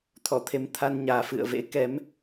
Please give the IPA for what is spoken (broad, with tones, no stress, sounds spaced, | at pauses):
t̪ʰ ɔ˧˩ t̪ʰ e˨˦ m t̪ʰ a˧ n ɲ aː˨˩ f ɨ̰˧˨ ə̯ v ḛ˧˥ k ɛ˨˦ m